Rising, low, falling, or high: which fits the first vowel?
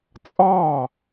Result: falling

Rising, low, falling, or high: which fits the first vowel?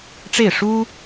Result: falling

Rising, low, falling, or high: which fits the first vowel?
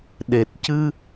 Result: low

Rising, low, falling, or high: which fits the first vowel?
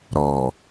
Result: low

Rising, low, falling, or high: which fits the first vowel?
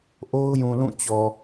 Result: high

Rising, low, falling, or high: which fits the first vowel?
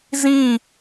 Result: falling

